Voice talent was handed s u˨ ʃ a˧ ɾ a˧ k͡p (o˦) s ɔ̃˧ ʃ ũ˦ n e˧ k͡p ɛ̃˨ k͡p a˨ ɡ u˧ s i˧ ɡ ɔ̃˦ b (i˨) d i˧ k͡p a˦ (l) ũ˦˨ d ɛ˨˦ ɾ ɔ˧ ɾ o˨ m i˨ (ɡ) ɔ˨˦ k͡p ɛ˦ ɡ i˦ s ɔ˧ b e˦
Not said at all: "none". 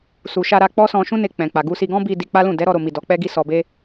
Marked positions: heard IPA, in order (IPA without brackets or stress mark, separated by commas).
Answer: ɔ˦, i˧, l, d